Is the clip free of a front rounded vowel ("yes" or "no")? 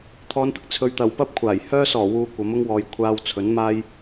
no